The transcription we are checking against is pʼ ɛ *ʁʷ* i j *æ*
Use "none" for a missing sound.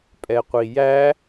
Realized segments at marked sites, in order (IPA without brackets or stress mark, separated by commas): qʷ, æ